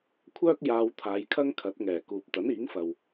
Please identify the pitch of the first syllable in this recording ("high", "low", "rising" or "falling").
high